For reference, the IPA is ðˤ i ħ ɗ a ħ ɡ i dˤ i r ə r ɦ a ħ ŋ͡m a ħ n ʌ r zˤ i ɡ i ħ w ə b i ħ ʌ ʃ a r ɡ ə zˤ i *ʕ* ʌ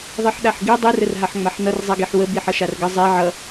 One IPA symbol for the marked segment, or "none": ʕ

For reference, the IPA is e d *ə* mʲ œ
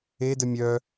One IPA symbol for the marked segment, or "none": ə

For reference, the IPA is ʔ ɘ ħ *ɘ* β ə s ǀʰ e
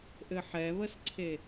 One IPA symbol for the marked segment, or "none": ɛ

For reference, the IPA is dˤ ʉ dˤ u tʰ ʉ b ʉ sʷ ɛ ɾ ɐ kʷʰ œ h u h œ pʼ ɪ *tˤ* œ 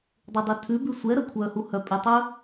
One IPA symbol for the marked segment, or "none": tˤ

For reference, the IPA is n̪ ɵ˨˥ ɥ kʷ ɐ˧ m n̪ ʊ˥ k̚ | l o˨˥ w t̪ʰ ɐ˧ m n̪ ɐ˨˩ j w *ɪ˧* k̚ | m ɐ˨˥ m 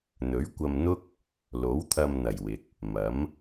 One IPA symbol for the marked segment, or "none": ɪ˨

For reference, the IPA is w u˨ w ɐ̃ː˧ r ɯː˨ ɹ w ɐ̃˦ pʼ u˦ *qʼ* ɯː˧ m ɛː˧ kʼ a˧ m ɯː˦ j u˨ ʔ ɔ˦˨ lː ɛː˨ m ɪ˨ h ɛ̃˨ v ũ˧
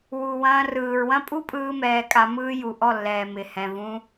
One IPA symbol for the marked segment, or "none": pʼ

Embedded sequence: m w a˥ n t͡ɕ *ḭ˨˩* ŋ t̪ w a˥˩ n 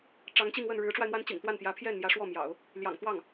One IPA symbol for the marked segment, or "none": ḭ˨˩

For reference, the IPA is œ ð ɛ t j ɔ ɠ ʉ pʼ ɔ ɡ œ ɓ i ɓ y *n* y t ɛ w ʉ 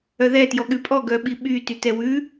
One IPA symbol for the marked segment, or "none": t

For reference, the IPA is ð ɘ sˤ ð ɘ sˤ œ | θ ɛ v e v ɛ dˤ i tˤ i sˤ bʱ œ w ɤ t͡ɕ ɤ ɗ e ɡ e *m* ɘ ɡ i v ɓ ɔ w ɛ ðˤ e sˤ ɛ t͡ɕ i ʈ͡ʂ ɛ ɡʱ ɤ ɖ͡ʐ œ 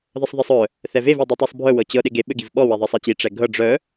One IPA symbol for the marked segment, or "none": ɓ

